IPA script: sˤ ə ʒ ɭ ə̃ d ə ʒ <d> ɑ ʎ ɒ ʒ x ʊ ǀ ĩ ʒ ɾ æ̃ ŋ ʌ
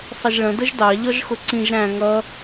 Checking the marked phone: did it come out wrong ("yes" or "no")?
no